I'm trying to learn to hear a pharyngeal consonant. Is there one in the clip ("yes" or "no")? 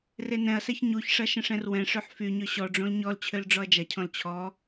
yes